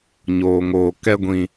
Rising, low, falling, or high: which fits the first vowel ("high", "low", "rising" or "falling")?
low